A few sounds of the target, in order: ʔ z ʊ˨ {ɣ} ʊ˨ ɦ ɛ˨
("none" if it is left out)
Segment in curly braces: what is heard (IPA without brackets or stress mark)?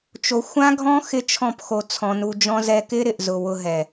w